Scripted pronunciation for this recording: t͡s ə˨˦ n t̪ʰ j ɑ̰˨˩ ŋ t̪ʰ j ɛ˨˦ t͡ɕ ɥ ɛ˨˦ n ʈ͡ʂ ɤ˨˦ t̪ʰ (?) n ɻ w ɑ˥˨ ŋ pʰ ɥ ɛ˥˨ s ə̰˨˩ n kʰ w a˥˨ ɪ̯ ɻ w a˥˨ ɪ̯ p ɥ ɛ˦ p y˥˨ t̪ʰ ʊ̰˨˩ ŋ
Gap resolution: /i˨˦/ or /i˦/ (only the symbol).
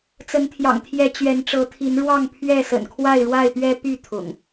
i˨˦